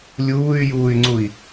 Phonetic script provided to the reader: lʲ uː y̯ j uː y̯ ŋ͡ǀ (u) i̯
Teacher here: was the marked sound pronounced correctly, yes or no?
yes